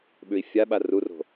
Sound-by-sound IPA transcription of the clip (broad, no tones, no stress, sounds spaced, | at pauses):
ɓ ʉ i̯ fʲ a ɓ a r u r o̤